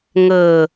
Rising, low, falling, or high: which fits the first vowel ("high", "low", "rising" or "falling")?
low